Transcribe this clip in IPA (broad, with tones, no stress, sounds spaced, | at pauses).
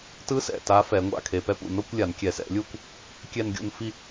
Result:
t ɯ˧˥ s ɛ̰˩˧˩ t a˧˥ f ɛ˧˩˧ ŋʷ a̰˥˧ kʰ e˩˧˩ p ɛ˧˥ p ṵ˩˧˩ n o˥˧ kʷ lʲ a˧˩˧ n kʲ ɛ˧˩˧ s ɛ̰˧˩˧ lʲ u˥˧ kʷ | kʲ ɛ˥˧ n ɡʲ o̰˥˧ n f i˥˧